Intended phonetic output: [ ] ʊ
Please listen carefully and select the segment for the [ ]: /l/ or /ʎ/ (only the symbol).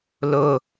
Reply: l